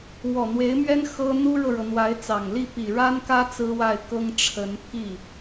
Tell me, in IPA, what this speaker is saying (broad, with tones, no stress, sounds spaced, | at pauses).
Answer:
w ɔ˨˩ n̪ w e˧˥ ɪ̯ m ɥ ɛ˥ n x ɤ˥ n̪ u˥ ɻ ɤ˨ ɻ ɤ˩ n̪ w a˧˥ ɪ̯ t͡s ɑ˨˩ ŋ l i˥˩ p i˨˩ ɻ a˥ n k ä˥ t͡s ɹ̩˥ w a˥˩ ɪ̯ k ɤ˥ ŋ ʈ͡ʂʰ ə˧˥ n pʰ i˥˩